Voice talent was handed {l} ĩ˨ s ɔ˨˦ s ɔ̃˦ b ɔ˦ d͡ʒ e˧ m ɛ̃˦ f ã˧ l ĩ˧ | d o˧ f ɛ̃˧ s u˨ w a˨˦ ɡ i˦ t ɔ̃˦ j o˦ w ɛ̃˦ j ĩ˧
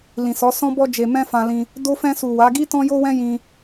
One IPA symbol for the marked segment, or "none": l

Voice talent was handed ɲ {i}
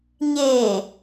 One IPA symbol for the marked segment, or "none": e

